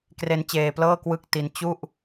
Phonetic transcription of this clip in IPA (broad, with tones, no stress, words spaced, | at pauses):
kre˦˥nt͡ɕeː˧plɤː˥˩ kwɯ˥˩k̚ti˦˥n t͡ɕu˥˩ʔ